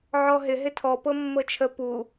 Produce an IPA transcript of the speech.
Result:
ʕɔɦɪ ɦɪtʰɔ pɤmːɤt͡ʃʰə pu

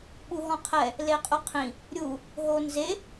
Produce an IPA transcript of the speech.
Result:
ɓuɦɔ̃qʰɛ | leqʼuqʰĩ | ɾʲu | ɦonze

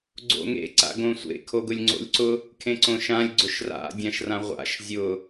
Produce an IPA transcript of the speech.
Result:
ɡ͡ǀo̰ŋḛ ǀa̰ɡõsʷḛ kʰoɡʊlʲŋ͡ǀo̰lʲǀʊ | kʰẽǀõʃãlʲ ɡ͡ǀʊʃra̰ dʲãʃrãʁʷa̰ʃ zʲʊ

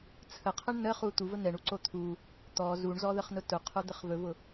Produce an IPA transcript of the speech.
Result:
t͡sʰəqʰəɳ nəχu t̪uvə n̪ɛɳuǀo t̪ʰu | t̪ɔ zuɳzɔðəχnʊ tʊqʰod̪əχ vɵvʊ

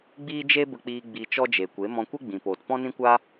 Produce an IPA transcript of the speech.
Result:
ɡ͡biː˦d͡ʒe˦bə˧k͡piː˧ ɡ͡bi˧ t͡ʃɔ˦d͡ʒe˨ kʷe˨˦mɔ̃˧kʷe˦ ɡ͡bĩ˨poː˨t pɔ̃˦nĩ˦kʷa˦

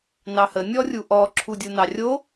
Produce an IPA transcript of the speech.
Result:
nɑhə nʲɔrʲuʔɔ ǁʰudʲunɑrʲo

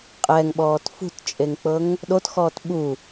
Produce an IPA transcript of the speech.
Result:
qʼɛŋɓɔːt fṳtt͡ʃʼeŋk͡pɤŋ | ɗotxɔːt ɓu

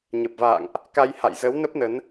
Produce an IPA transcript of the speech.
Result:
ɲə˨˩p̚va̰ː˧˨ŋʔ | ka˧j ha̰˧˨jzə˨˦wnə˦˥p̚ nə˨˦n

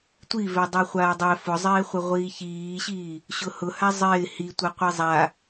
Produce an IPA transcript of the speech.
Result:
tʷivɛ dˤɛχʷaːdˤɛ fʊzˤɪːχʷɪ ʁʷiːçiːɕiː | ɕʊhʊ hazˤɪː hitʷaqʷɛ zˤa

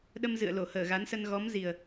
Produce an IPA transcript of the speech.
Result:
ɗə˧mzɨ̰˧˨ə̯ lo˧˩həː˧˩ɣa˨˦nsə˧n ɣɔ˨˦mzi˨˩ə̯

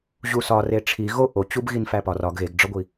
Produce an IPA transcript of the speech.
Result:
ʑusɒ reʈ͡ʂʰi ɣo ʔot͡ɕub ɣinfæpɒ rɒɡ ɣeɡɖ͡ʐɒɡʷi

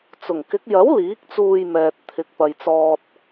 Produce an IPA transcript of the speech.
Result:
t͡sʊ˨˩ŋ kɪ˨˥k̚ jɐ˨˥w liː˨˥k̚t͡suː˧jmɛː˨t̚ t̪ʰɪ˨˥k̚pɐ˨jt͡sɔː˧t̚

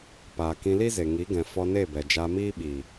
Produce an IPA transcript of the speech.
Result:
paː˨kĩ˧li˦ze˨ ŋi˨˦ɡɛ̃˨ fɔ˧ne˦˨bɛ˨ d͡ʒa˧miː˦ɓiː˨

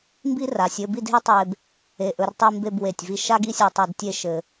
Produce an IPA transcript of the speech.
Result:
mbi˥ra˩˧sʲ ɘ˥˧bi˥˧dɦe˥tˤe˧b | e˧˩ʔɵ˧rtˤi˥˧mbe˥˧b we˧˩tʲvi˧ ʃa˥ɡi˥˧sʲ e˩˧ tˤa˧d tʲe˥˧ʃɘ˧

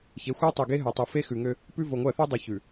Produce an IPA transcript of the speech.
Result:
çe˨˦xʷœ˦tˤʉ˨ɡe˦ ɦœ˨tˤu˨ fe˦xʉ˨ŋø˦ | pʉ˦vo˨ŋʷɜ˦˨ θʉ˦dˤʉ˨ çʉ˨

